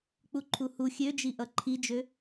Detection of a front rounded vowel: present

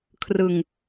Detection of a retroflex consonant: absent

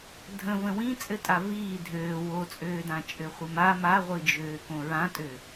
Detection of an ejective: present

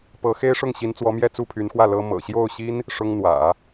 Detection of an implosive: absent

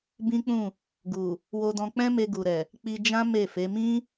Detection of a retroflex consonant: absent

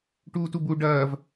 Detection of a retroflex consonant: present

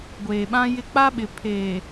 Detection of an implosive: present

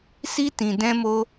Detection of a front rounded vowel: absent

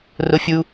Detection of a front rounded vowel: absent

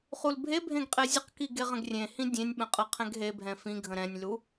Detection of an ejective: present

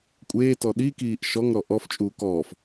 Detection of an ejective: present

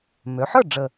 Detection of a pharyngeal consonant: present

